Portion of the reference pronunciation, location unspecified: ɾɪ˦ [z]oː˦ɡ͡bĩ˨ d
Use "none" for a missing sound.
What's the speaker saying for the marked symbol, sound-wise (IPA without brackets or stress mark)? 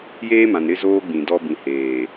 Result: z